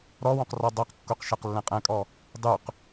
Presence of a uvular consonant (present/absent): present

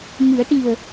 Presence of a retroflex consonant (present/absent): present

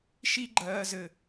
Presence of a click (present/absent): present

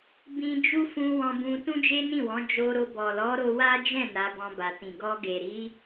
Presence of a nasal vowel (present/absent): present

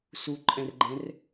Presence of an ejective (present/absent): present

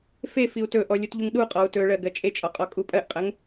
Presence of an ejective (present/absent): present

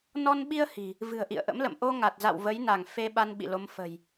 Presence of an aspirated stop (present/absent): absent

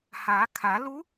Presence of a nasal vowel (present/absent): absent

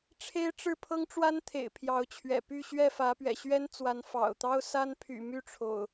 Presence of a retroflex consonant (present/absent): present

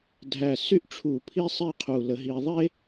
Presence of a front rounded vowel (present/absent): present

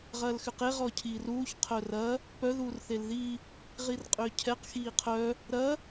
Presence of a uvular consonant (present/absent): present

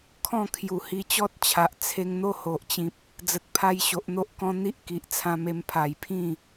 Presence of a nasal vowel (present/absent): present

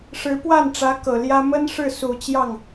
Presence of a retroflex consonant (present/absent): present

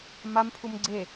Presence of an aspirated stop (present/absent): present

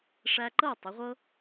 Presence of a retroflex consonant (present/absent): present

